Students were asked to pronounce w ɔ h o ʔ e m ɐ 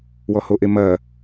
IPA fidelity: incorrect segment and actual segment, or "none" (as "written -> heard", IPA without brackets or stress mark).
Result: none